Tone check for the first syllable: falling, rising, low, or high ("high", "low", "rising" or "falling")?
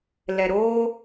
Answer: low